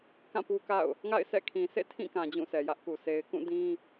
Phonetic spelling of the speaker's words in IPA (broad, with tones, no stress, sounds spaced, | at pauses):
k ã˦˨ p u˦ k a̰˦˨ ʊ̯ | ŋ a̰˦˨ ɪ̯ s ɛ̰˦˨ kʰ ĩ˨ s ḛ˦˨ tʰ ĩ˦˨ k ã˨ d͡ʑ ũ˦˨ s ɛ˨ j ä˦ ʔ k u˨ s e˨ ɪ̯ k ũ˦˨ d ĩ˦